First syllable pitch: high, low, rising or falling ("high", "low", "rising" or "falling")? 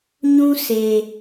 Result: high